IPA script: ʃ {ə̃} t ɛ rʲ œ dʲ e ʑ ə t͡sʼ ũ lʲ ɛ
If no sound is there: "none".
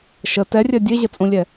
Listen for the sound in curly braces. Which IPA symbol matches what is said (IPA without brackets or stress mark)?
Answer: ə